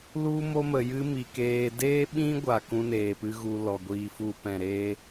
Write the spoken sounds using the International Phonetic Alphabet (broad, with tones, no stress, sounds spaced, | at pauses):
l u˦ m o˦ m ə˨ j ɨ˦ m i˨ k eː˧ d eː˦ ɓ ĩ˦ ɡʷ a˨ k ũ˦ n eː˨ p ɨ˦ ɣ u˧ l ɔ˨ ɡʷ iː˧ f u˧ p ɛ̃˨ ɾ eː˦